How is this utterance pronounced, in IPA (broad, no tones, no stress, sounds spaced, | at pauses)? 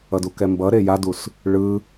ʌ d u k ɛ m b ʌ ɾ e j a d u s | ɭ ɯ